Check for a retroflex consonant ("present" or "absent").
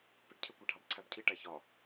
present